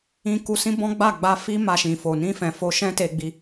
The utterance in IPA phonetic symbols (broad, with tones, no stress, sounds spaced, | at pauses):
ĩ˧ k u˧ s ĩ˦ b ɔ̃˦ ɡ͡b a˦˨ ɡ͡b a˧ f i˦ m a˧ ʃ ĩ˨ f o˨ n ĩ˧ f ɛ̃˨ f o˧ ʃ ɛ̃˦ t e˧ ɡ͡b i˧